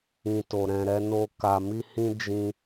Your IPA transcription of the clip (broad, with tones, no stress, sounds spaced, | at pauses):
ĩ˨ t o˨ ɾ ɛ̃˨ ɾ ɛ˧ n o˧ k a˨ m i˧ h ĩ˧ d͡ʒ ĩ˧